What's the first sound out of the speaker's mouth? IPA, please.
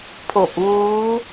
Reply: pʰ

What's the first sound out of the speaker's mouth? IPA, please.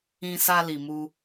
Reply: ĩ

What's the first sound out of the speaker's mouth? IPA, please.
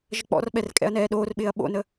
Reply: ʒ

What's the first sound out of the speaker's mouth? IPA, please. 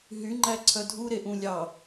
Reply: ɦ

